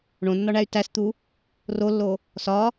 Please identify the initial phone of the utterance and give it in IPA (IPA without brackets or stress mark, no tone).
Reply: ɳ